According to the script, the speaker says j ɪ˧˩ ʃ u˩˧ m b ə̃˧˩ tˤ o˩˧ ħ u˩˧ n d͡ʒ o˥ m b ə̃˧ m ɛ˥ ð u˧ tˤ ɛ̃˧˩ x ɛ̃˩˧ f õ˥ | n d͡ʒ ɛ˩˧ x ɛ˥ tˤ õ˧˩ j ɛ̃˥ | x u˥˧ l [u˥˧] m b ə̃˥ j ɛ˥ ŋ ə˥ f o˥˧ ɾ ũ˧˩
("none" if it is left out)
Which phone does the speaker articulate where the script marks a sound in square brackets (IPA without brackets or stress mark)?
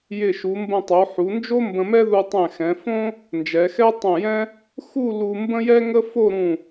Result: u˧